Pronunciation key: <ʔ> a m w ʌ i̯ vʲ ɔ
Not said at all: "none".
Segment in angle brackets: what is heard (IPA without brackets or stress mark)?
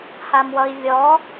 h